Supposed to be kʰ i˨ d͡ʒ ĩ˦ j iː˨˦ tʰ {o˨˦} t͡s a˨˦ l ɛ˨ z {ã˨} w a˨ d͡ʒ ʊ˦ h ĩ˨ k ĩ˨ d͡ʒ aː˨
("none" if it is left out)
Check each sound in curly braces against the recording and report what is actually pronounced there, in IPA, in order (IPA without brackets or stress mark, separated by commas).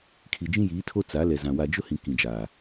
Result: o˦, ã˨